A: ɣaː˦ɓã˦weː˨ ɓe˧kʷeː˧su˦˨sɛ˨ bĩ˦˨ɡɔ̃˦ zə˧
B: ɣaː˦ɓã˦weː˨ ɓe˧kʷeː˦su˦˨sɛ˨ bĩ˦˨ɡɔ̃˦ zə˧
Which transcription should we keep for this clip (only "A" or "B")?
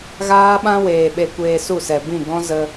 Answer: A